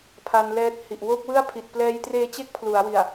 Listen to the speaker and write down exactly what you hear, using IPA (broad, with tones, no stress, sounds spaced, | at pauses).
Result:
pʰ a˧ n l ɛː˦˥ t̚ h i˨˩ ʔ w o˥˩ k̚ w ɯ˥˩ a̯ pʰ i˨˩ t̚ p l ɛː˧ j t r eː˦˥ t͡ɕ e˦˥ k̚ pʰ l u˩˦ a̯ w i˨˩ a̯